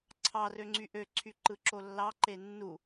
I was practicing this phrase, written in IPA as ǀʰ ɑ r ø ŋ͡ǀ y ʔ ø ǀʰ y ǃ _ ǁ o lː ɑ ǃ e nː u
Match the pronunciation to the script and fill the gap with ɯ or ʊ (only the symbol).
ɯ